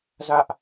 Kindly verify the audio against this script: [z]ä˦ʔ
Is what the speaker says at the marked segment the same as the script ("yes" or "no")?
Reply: yes